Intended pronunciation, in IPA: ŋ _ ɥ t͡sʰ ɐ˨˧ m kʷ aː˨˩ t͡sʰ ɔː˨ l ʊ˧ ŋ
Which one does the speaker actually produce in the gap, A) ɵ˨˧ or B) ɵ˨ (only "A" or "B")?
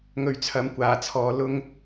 A